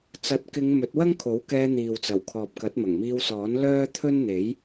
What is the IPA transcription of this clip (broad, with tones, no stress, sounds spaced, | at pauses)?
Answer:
t͡s ɐ˨˥ t̚ k ɪ˨˧ ŋ m ɵ˨˥ t̚ w ɐ˥ ŋ kʰ o˨˥ w k ɛː˧ n̪ iː˨ w t͡s ɐ˨˩ w kʰ ɔː˨ p̚ k ɐ˨˥ t̚ m ɐ˨˩ ŋ m iː˧ w s ɔː˨˥ n l œː˥ t̪ʰ ɵ˥ n n̪ e˨˥ j